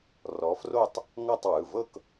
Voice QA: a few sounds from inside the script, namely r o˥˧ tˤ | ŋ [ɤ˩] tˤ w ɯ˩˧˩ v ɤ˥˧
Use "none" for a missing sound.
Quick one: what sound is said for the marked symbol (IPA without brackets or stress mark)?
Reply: ɤ˥˧